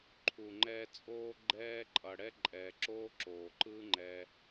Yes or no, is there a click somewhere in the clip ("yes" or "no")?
yes